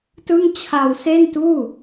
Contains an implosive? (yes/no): no